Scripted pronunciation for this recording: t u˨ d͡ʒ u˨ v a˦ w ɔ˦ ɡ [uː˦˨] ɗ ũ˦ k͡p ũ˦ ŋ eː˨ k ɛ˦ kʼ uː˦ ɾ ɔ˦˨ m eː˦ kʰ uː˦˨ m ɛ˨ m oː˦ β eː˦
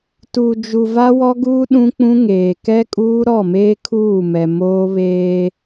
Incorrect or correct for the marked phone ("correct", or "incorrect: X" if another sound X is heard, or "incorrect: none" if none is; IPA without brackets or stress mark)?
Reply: incorrect: uː˦